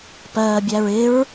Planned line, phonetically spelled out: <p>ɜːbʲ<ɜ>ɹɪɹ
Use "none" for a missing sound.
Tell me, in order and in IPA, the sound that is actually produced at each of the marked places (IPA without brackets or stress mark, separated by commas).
p, æ